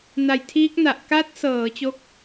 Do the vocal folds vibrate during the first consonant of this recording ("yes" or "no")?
yes